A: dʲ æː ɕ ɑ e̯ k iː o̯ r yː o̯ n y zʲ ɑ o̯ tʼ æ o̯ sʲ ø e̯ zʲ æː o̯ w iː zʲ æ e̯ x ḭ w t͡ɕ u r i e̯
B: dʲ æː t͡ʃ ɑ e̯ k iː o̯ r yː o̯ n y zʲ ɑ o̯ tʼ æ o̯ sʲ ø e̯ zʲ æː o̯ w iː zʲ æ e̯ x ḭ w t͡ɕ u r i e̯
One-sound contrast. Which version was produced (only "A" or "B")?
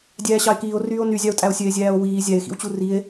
A